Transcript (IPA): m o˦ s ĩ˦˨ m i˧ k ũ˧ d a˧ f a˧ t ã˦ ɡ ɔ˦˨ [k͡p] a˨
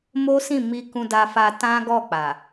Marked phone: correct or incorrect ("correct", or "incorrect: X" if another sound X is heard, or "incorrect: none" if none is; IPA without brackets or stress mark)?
correct